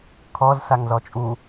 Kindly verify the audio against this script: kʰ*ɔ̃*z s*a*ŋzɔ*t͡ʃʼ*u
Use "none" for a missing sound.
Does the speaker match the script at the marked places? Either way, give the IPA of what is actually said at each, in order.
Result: ɔ, a, t͡ʃʼ

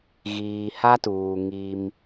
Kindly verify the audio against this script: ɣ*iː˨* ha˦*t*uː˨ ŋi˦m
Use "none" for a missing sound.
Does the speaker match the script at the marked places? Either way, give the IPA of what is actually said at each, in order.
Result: iː˨, t

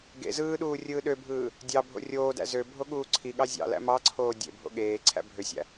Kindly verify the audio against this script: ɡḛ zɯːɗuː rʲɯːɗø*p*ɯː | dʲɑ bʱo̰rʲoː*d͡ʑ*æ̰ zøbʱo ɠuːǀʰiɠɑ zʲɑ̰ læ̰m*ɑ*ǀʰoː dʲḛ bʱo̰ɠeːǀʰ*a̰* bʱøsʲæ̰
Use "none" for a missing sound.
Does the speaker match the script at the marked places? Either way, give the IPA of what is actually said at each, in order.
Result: bʱ, d, ɑ, æ̰

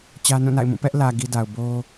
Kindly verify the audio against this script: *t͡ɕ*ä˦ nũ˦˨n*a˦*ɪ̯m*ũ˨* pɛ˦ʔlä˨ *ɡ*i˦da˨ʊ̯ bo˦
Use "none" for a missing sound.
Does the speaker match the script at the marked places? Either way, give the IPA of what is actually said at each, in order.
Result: t͡ɕ, a̰˦˨, ũ˦˨, ɡ

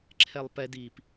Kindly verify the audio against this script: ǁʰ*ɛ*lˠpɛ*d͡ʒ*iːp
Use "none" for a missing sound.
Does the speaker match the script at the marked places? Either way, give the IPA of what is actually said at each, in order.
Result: ɛ, d

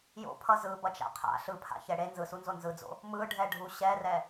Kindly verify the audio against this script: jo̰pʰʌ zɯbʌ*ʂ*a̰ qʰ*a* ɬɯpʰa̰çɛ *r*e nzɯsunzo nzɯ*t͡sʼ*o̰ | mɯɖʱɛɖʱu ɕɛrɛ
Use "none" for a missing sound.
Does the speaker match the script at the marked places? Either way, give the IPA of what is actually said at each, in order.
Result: t͡ʃ, a̰, ɽ, d͡z

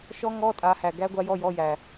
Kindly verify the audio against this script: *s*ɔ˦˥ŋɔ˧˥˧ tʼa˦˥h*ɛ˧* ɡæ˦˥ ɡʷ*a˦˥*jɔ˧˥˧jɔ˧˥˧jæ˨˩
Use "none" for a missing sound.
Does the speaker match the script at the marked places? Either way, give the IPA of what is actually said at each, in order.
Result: ʃ, æ˧, a˦˥

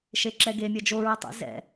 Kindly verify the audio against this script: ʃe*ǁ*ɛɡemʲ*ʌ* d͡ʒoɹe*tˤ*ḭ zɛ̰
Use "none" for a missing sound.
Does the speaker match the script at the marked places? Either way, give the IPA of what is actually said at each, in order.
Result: ǁ, ʌ, tˤ

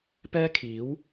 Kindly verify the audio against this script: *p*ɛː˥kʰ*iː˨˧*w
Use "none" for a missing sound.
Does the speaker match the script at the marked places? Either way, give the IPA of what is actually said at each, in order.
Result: p, iː˨˥

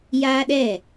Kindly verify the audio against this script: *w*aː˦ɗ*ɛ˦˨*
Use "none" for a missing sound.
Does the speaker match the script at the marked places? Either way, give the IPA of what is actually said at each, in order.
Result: j, ɛ˦˨

